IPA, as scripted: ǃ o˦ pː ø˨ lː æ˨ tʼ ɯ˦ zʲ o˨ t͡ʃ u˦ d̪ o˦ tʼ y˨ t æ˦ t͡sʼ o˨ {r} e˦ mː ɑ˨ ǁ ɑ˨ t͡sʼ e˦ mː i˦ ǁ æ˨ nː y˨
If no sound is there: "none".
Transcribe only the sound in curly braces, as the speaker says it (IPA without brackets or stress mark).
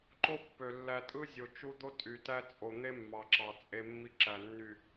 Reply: n̪